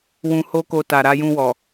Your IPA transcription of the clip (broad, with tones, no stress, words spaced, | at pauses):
wũ˧ho˦ko˧ ta˨ɾa˧jũ˧wɔ˨